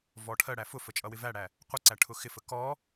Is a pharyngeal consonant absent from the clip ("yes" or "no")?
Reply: yes